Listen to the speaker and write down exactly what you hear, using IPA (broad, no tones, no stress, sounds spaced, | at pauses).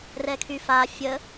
r ɛ kʰ y f a fʲ ə